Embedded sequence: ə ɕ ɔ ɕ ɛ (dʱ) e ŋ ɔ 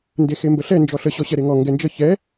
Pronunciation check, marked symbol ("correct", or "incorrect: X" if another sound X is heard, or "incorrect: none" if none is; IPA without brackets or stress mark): incorrect: ɾ